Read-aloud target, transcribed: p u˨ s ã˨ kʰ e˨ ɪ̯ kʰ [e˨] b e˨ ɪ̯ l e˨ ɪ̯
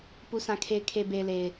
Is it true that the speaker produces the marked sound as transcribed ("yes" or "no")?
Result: yes